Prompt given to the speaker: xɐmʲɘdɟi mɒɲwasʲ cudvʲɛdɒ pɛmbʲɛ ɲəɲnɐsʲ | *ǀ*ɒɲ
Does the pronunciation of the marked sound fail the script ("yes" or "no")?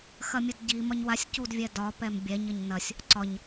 no